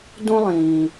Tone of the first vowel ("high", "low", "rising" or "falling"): high